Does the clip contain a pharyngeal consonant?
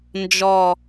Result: no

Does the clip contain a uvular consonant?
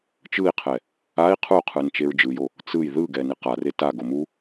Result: yes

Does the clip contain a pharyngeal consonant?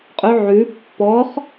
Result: yes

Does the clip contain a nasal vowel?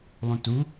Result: yes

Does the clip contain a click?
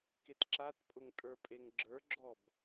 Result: yes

